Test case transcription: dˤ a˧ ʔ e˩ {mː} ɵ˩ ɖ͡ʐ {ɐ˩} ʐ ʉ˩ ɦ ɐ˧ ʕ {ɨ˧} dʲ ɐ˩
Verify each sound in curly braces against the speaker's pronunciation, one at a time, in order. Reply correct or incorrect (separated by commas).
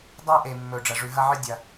correct, correct, correct